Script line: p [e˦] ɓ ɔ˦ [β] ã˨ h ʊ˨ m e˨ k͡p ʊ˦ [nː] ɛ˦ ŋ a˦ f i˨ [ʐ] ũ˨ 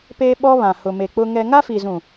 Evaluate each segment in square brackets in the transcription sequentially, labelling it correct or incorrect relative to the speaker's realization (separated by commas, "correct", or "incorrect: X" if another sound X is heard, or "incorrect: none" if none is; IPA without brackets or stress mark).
incorrect: eː˦, correct, incorrect: ŋ, incorrect: z